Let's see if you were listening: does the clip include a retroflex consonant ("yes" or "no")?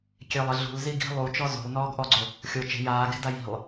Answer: no